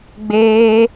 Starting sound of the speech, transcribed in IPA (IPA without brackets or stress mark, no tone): ɡ͡b